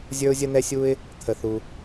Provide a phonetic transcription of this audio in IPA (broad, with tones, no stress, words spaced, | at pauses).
zʲə˞˥ʊ̯zʲə˥nɛ˥sʲu˥ɪ̯ | t̪ʰə˩θu˩